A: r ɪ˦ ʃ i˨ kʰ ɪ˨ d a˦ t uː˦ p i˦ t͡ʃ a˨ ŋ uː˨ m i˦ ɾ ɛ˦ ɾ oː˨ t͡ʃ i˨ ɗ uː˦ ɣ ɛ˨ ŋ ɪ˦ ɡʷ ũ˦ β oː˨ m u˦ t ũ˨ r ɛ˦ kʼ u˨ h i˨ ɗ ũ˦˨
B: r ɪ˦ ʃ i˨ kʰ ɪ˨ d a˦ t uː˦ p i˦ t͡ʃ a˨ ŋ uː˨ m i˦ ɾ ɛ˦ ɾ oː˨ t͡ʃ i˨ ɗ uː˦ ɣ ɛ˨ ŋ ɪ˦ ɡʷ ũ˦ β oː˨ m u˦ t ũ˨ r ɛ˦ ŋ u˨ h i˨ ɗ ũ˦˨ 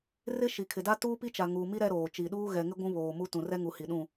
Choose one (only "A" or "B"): B